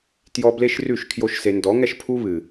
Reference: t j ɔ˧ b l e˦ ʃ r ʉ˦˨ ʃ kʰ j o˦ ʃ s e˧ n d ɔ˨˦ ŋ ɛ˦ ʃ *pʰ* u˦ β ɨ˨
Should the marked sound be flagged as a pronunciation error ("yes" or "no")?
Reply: no